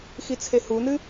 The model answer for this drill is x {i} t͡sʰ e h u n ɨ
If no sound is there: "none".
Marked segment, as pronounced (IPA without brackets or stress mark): i